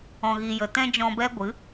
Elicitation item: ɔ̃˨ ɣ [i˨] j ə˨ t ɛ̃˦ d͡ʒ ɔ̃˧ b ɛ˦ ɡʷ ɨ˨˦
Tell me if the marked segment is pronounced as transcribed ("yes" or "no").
yes